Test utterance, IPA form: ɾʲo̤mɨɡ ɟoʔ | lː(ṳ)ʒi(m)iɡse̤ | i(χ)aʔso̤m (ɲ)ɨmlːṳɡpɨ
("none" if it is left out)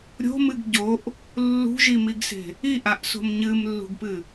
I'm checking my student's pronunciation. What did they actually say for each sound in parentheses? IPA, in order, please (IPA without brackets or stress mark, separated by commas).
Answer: ṳ, m, ʔ, ɲ